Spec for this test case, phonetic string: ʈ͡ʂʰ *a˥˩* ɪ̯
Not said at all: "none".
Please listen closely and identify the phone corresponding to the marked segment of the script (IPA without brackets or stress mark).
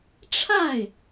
a˥˩